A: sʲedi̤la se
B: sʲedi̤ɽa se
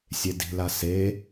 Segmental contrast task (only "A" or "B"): A